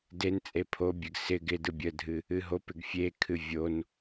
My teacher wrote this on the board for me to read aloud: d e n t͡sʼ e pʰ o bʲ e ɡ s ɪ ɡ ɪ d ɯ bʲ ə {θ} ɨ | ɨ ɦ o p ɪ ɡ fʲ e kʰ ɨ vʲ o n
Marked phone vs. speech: incorrect: dʱ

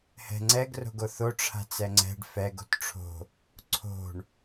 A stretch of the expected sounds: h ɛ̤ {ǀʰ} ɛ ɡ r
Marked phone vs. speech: incorrect: ŋ͡ǀ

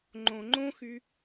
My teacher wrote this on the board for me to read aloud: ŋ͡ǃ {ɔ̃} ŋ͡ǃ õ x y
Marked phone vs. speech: incorrect: õ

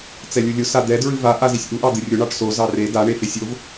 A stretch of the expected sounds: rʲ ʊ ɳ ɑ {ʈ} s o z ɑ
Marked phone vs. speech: correct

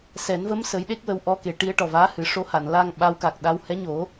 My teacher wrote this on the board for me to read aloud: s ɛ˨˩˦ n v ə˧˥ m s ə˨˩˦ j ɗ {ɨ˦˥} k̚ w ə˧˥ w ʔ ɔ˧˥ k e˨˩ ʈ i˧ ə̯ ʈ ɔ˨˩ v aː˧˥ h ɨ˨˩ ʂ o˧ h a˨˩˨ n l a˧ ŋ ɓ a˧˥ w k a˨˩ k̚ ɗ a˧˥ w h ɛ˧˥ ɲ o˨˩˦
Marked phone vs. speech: incorrect: e˦˥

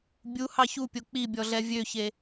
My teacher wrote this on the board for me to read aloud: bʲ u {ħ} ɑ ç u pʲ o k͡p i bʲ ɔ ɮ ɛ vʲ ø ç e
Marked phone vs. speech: incorrect: h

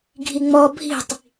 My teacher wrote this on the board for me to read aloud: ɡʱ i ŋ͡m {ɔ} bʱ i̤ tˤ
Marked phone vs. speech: correct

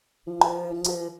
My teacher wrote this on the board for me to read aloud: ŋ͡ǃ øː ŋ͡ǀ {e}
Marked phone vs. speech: incorrect: ɘ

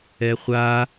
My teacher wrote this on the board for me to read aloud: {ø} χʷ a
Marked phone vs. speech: incorrect: ɛ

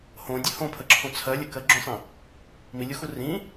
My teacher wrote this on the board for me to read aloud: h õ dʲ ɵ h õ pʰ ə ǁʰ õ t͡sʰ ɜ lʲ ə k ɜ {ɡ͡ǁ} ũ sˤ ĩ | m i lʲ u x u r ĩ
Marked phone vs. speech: correct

